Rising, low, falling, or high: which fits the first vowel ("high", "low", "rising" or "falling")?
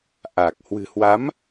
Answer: low